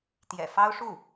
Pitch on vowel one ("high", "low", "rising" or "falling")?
low